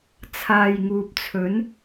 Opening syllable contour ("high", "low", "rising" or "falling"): low